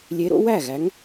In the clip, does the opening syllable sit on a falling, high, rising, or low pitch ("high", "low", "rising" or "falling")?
rising